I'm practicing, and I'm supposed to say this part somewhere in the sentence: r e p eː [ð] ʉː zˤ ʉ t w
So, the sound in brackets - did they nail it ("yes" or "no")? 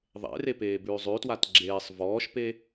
no